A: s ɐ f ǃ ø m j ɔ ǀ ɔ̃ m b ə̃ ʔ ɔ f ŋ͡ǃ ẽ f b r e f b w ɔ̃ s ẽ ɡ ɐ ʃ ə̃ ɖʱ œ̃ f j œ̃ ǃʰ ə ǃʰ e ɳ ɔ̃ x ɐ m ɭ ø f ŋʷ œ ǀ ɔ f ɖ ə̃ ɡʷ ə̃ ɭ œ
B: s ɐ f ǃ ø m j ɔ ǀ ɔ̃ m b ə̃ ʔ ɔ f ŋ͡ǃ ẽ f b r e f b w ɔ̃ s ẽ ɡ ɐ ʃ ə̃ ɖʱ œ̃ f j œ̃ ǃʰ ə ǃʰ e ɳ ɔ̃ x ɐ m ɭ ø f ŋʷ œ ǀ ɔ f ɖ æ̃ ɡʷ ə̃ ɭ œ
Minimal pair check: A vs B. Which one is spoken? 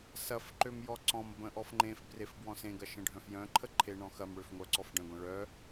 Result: A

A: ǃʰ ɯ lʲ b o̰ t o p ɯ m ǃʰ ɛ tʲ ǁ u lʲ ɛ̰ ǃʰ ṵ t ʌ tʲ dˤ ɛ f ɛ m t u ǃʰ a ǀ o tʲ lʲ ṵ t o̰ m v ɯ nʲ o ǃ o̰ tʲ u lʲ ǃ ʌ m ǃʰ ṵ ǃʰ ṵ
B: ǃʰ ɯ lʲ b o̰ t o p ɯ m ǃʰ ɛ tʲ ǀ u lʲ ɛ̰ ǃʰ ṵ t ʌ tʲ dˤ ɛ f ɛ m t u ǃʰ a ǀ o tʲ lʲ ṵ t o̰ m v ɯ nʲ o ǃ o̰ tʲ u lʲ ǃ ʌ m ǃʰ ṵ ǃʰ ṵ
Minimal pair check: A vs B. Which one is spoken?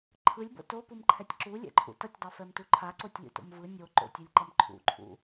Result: A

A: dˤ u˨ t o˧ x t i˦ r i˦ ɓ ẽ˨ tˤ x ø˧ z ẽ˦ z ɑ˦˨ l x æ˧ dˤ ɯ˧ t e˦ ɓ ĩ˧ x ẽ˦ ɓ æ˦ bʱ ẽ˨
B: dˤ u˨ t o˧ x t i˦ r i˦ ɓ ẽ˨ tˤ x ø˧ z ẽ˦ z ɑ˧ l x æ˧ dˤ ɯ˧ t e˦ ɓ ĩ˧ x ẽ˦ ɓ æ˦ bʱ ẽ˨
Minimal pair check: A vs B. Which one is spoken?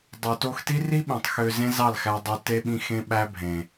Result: A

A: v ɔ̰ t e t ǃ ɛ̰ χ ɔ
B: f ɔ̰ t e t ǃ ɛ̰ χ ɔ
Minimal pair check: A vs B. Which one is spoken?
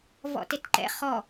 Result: A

